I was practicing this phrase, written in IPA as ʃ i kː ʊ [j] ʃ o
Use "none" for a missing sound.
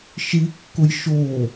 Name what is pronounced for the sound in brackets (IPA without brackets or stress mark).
j